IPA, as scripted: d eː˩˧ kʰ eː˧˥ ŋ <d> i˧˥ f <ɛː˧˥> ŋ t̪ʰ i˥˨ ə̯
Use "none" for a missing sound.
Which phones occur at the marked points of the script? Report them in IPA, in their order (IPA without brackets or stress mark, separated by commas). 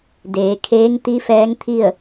t̪, ɛː˧˥